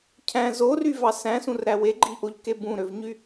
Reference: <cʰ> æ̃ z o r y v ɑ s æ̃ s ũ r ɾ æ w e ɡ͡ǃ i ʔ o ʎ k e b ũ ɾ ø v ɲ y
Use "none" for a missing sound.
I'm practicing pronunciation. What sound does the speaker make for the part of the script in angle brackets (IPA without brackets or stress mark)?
cʰ